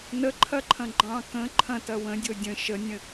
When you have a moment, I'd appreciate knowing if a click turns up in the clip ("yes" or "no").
yes